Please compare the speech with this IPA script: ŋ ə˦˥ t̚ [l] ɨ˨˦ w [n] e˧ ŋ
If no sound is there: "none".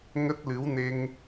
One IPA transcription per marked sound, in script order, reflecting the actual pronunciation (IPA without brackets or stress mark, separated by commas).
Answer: l, n